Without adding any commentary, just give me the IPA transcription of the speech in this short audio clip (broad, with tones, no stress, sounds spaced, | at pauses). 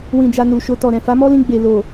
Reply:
w ĩ˨ d͡ʒ a˨ n u˨ ʃ o˧ t ɔ˨ ɾ ɛ̃˨ f a˨˦ m ɔ˦ l ĩ˧ ɡ͡b e˨ l o˨